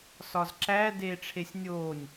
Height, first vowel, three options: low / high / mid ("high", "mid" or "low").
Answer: low